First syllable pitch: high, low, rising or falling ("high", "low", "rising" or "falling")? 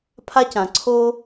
high